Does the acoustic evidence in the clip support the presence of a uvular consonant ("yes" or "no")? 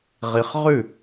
yes